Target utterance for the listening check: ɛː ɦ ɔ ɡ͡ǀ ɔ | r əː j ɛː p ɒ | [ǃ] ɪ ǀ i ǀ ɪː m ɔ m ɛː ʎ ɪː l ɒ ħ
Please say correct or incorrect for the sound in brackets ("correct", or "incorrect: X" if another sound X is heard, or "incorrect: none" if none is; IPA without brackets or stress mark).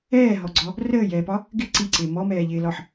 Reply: incorrect: ɡ